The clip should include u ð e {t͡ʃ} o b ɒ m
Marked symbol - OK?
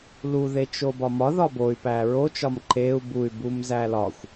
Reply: yes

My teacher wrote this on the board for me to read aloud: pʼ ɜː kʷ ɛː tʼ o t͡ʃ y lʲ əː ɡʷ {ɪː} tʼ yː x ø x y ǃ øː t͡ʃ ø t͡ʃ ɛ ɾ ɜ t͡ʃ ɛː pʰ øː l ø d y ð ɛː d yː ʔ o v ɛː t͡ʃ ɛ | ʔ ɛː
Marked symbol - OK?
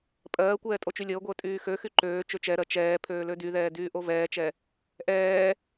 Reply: no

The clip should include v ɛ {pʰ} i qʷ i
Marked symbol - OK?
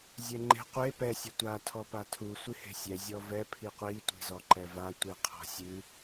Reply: yes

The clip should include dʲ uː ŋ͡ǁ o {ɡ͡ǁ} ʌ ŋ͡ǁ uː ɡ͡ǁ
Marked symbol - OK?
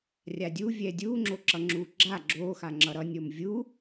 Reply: no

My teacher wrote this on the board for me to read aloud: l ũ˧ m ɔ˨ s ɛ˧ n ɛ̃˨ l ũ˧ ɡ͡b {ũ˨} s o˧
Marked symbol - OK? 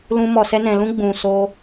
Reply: yes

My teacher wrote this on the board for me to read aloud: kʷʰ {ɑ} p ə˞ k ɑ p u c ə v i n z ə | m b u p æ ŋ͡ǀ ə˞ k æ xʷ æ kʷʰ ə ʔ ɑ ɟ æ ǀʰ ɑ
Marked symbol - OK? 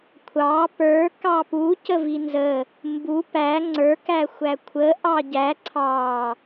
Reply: yes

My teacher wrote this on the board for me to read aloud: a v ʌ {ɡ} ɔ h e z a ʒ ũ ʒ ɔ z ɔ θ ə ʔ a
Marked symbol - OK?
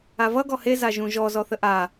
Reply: yes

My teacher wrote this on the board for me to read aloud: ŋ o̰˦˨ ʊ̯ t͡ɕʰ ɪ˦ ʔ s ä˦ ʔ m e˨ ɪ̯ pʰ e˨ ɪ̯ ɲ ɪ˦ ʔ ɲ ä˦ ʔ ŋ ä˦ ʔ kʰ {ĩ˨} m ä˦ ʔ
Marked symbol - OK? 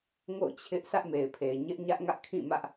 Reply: no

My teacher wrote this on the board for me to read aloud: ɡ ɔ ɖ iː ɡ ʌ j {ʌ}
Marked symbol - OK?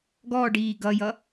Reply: yes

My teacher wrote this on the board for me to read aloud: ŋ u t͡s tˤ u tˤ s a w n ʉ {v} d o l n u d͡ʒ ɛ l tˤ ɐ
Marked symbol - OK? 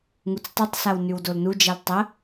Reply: no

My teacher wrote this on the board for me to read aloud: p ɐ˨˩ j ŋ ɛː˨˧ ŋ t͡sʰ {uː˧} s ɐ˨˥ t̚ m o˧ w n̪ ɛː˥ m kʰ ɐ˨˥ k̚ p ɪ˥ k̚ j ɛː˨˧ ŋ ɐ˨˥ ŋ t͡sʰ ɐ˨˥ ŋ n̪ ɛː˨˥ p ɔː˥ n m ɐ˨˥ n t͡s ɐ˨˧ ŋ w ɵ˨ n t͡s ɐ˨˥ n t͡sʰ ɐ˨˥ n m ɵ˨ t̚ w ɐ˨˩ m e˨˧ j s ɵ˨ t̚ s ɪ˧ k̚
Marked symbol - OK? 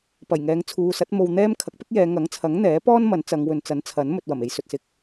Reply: no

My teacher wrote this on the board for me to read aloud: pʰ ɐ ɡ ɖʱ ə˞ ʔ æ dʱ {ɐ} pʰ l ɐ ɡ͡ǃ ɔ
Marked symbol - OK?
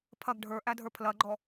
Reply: no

